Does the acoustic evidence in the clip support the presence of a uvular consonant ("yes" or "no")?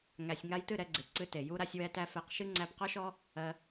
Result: yes